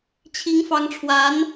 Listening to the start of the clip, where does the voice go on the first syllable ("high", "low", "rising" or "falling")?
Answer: rising